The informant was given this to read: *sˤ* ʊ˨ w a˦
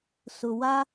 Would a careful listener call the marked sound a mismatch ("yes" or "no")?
yes